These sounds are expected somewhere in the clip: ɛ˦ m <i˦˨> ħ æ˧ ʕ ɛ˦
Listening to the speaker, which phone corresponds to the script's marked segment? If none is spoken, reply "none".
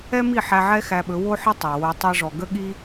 i˦˨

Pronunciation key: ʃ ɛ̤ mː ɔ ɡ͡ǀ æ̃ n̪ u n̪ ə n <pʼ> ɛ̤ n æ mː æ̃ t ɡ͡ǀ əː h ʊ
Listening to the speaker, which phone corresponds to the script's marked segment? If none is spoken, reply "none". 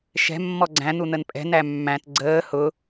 pʼ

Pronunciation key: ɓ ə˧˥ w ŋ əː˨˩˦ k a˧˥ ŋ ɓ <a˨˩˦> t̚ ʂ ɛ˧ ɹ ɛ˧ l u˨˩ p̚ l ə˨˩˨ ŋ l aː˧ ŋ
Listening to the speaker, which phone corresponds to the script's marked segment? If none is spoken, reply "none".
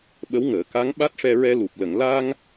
a˦˥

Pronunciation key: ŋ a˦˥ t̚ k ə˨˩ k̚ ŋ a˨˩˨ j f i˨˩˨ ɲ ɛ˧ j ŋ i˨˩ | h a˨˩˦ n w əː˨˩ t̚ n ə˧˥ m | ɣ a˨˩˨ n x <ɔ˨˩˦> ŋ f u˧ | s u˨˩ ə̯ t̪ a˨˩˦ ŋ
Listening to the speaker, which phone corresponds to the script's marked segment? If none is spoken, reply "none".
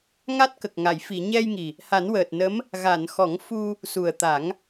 ɔ˨˩˦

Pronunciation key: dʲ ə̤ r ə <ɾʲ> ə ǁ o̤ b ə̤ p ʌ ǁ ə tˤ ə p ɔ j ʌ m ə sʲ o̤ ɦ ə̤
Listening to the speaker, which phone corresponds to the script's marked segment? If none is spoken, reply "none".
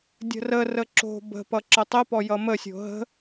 r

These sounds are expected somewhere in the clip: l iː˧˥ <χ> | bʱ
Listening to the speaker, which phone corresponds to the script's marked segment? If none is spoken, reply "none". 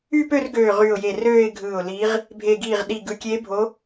ʁ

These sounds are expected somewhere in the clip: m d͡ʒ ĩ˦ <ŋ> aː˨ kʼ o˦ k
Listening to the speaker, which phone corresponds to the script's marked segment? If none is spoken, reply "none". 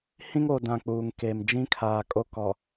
kʰ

